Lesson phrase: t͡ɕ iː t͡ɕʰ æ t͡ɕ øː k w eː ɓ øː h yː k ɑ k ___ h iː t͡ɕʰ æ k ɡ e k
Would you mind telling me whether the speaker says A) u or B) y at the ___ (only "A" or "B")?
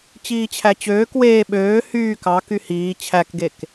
B